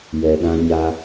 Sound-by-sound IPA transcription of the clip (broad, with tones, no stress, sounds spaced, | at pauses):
j ɛ˨ ɗ ã˦ ɲ a˦